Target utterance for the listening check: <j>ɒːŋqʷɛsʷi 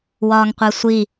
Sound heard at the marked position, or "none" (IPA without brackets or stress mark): w